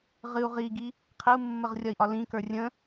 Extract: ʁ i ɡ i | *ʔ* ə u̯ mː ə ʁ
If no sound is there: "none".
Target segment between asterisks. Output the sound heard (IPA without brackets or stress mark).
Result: qʰ